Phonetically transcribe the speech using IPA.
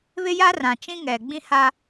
β ɪ˦ j a˦ r ã˨ t͡ʃ ĩ˦ ŋ ɛ˨ ɡ͡b ĩ˦ h a˦

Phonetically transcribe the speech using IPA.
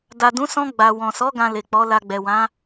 d a˨ d ũ˨˦ s ɔ̃˧ ɡ͡b a˨ w ɔ̃˨ s ɔ˨˦ ɡ ã˧ l e˨ k͡p ɔ˨˦ l a˧ ɡ͡b ɛ˨ w ã˨˦

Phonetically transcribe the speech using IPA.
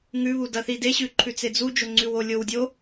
ŋ ʉ β u d ɐ θ i d e ɕ ʉ ǃʰ ʉ t͡s e d͡z u d͡ʒ o ŋ͡ǀ ʉ w o lʲ o w dʲ o

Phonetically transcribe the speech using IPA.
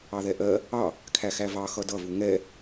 ɑ ð ɛ ʔ ɜ | ɑ | kʰ æ x æ v ɑ x ʌ d ʌ v u ŋ ɛ

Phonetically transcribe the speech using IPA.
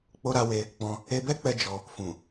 k͡p o˧ ɾ a˧ w e˧ | k͡p ɔ̃˧ | e˧ b ɛ˦ k͡p ɛ˧ d͡ʒ ɔ˧ | f ũ˨

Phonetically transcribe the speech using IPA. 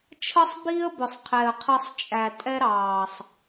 t͡ʃʰ ʌ˦ sˤ b i˦ ə̯ b ʊ˨ sˤ qʰ ɛ˨ ə̯ qʰ ʌ˧ sˤ t͡ʃʼ æ˨ tʼ ɛ˦ ɾ ɑː˨ sˤ

